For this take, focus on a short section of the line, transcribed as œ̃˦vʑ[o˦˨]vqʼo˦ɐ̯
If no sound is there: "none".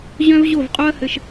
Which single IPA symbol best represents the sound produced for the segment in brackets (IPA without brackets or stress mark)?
o˦˨